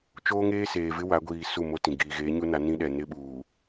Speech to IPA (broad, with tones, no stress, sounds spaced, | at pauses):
t͡ʃ oː˦ ŋ eː˦ s eː˨ v ɪ˦ w a˨˦ ɡʷ iː˨ s u˦˨ m o˦ t ĩ˨ ɡ iː˨ ɣ eː˨˦ ɲ u˦ n a˨˦ n ĩ˦ ɗ ɛ˨ n ɪ˦ ɓ uː˨